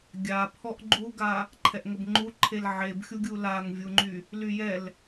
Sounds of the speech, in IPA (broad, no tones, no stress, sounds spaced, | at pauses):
ɡʲ a pʰ ɔ ʔ ɡ͡ǃ u ɡ a | ǃʰ ɛ ʔ ŋ ə b ŋ͡ǃ u ǃʰ e l ʕ e b xʲ u ɡʲ u l a ŋ vʲ u ŋ͡ǃ y | l y j ɛ l